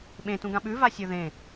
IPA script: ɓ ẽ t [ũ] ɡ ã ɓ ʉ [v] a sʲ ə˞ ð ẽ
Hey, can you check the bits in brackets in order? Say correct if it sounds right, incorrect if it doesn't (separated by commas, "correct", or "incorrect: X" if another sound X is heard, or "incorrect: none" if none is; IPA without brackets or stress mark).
correct, correct